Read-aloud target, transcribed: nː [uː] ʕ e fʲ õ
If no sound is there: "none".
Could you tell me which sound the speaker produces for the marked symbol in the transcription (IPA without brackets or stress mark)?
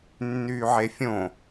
yː